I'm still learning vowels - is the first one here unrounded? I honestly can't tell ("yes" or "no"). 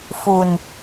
no